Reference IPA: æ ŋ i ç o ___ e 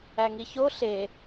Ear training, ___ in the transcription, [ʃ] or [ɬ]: ɬ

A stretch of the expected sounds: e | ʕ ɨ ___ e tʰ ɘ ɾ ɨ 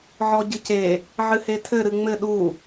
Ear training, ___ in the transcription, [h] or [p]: h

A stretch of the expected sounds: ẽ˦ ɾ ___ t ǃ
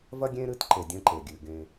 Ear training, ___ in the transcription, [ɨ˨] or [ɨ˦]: ɨ˦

